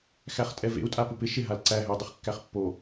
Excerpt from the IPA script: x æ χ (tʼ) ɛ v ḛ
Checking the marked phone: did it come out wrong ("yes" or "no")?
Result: no